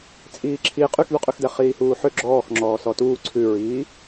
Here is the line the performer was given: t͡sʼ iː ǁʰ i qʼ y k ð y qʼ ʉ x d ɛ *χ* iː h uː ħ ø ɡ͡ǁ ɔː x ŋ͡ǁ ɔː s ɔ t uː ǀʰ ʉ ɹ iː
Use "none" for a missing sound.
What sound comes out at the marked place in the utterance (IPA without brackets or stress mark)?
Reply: χ